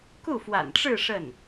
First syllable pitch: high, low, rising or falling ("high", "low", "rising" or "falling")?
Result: falling